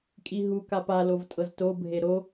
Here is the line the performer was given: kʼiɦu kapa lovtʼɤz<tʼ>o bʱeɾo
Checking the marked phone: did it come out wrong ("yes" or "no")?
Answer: yes